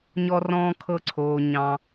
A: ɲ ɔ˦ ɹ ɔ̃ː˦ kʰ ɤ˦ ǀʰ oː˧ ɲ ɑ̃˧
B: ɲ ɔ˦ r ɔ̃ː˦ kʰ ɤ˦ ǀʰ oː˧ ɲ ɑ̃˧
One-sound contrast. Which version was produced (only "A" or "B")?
B